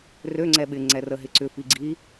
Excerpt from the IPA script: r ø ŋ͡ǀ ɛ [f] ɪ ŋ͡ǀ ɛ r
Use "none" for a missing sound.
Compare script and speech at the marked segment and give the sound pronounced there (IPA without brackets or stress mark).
ɓ